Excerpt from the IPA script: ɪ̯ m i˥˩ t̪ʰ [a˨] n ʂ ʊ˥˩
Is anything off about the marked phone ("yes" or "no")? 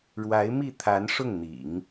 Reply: yes